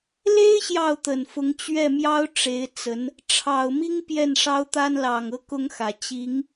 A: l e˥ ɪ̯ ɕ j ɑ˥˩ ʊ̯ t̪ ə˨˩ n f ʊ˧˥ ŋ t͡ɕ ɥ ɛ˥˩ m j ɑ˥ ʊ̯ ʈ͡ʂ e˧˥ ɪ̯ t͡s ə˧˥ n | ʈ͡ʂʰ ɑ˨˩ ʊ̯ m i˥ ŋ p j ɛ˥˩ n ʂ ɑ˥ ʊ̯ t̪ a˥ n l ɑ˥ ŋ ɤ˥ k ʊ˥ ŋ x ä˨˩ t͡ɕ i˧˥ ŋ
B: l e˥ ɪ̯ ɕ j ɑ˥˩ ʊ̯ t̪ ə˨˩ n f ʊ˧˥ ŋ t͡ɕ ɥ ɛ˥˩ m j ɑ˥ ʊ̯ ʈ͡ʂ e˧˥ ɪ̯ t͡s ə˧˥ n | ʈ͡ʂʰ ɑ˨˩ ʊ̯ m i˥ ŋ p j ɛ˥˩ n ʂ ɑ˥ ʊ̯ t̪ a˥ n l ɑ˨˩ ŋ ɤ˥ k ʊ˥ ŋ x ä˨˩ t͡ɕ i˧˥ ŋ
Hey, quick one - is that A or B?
B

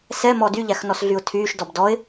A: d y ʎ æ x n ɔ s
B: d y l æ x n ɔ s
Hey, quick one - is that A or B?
A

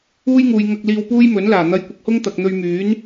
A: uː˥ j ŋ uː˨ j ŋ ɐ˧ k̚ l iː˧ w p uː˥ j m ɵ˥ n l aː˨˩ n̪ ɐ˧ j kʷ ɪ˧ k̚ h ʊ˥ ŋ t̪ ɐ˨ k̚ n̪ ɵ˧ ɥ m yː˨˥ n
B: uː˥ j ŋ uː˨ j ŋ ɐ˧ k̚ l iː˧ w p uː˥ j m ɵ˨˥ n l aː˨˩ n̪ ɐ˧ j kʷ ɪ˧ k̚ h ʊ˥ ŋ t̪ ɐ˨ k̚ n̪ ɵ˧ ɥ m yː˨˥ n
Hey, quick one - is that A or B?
B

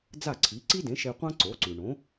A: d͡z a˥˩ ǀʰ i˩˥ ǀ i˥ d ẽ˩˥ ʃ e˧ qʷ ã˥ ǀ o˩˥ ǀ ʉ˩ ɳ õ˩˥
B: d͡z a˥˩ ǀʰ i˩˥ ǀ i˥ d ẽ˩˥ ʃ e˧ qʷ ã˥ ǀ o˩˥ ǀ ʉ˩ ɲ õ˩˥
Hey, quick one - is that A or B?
A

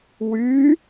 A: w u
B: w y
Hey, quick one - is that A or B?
B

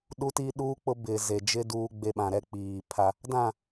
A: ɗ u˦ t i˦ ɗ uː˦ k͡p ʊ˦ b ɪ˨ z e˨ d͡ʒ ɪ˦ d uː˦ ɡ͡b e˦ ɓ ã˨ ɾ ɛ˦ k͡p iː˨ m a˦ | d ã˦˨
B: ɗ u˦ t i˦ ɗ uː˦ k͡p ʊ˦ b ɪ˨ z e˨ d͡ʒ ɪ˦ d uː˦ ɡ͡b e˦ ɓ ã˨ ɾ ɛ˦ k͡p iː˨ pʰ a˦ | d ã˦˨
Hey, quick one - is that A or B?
B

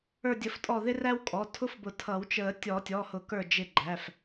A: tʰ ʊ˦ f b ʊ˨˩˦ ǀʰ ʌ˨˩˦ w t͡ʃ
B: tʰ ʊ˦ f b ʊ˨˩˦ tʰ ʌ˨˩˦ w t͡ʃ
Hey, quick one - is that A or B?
B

